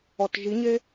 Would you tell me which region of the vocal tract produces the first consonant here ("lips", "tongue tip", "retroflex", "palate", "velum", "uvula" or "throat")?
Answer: tongue tip